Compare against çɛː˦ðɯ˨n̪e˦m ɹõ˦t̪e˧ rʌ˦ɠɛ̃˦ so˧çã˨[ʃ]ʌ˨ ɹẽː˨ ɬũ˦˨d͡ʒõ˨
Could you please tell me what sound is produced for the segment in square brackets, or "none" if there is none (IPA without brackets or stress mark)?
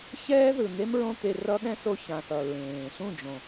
θ